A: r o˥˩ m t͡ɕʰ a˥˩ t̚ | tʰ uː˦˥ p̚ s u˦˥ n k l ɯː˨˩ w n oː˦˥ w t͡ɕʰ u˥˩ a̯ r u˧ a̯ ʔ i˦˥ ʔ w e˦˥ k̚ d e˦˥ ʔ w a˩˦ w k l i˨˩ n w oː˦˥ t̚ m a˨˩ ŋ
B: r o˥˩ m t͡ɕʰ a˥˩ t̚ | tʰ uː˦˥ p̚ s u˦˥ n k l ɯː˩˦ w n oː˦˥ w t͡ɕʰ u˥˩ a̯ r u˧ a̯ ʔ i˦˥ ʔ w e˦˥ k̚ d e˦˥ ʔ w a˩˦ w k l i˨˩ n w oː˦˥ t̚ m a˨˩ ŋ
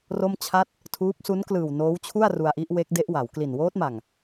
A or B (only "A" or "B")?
A